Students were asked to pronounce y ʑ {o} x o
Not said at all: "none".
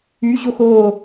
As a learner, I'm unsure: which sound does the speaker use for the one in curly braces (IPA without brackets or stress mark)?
o